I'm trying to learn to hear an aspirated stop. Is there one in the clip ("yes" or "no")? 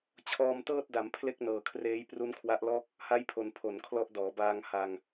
yes